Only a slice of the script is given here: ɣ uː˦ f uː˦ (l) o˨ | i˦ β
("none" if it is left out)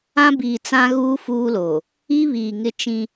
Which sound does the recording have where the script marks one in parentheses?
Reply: l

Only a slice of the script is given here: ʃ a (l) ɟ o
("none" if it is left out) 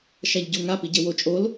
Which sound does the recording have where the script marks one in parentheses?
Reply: ʎ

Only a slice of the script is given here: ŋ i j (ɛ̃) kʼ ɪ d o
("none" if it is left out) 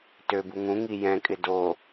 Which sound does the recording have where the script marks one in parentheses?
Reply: ɛ̃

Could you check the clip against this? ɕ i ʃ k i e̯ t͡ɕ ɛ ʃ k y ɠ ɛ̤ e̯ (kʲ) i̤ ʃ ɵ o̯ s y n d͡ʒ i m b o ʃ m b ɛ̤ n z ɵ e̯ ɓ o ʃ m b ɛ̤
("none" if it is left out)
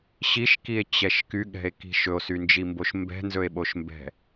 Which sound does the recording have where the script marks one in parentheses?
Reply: k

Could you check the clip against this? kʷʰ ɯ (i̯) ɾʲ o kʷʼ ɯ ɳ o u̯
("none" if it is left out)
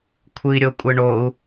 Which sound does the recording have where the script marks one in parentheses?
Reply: i̯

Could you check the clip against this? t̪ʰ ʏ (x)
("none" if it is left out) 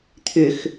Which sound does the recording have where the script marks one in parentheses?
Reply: x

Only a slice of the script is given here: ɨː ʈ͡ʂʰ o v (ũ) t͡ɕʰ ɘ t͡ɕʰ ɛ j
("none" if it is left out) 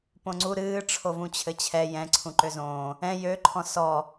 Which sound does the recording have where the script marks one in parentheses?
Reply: ũ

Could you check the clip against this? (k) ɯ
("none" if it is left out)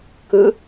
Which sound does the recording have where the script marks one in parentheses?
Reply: k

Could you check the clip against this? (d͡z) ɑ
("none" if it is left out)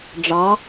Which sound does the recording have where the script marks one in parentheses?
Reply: ɖ͡ʐ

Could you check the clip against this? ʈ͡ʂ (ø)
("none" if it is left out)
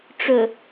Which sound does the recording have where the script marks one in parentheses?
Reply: ɵ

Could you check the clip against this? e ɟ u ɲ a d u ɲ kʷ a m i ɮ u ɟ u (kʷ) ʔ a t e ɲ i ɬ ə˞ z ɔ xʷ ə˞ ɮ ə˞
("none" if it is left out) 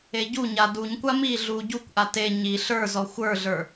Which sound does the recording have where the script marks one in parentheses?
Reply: kʷ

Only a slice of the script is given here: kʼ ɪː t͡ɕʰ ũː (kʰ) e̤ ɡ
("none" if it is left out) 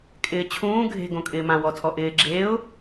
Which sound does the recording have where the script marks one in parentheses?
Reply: ɡʱ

